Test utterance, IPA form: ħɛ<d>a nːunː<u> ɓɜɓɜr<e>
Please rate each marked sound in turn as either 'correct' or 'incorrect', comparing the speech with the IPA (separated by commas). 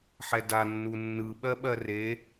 correct, incorrect, correct